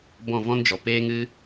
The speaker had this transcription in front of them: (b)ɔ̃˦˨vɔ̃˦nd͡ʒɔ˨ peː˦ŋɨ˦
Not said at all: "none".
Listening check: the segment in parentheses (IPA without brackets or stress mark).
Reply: b